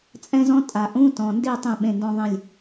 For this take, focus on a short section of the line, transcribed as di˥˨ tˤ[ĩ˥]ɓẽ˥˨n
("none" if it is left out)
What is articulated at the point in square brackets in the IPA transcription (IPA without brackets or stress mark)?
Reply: ĩ˥˨